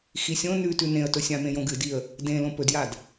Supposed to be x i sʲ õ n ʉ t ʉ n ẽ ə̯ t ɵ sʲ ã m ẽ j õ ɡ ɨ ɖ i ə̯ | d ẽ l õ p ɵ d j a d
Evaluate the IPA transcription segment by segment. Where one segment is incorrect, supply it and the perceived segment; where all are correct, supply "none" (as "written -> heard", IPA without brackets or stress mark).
ɖ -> d